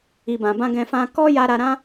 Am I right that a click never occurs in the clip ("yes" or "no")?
yes